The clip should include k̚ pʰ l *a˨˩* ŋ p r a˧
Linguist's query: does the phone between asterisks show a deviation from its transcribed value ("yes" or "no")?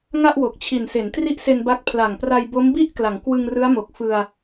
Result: no